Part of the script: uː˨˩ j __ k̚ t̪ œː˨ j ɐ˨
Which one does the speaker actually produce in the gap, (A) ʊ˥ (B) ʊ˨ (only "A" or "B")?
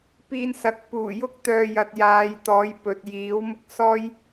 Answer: A